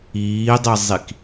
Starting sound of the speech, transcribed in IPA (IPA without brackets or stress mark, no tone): iː